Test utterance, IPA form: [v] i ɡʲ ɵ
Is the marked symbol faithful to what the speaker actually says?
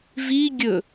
yes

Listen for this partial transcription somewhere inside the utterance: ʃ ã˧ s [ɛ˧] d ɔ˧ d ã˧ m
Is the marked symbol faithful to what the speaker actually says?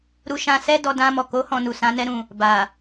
no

